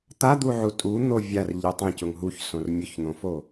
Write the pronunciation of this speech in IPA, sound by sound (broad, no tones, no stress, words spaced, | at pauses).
t̪ad̪uʕu tʼun̪o vʲarʎi tˤẽcʊŋ ɦuçsõr mʲʊçn̪õfo